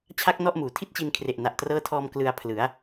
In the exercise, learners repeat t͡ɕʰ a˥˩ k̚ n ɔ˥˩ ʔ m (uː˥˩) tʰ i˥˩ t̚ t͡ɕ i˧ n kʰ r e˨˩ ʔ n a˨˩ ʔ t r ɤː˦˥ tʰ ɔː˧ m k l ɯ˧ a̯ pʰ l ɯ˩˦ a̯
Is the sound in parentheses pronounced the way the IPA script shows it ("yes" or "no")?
no